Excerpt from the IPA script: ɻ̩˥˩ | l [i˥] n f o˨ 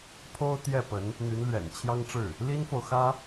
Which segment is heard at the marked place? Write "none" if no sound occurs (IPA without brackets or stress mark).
i˥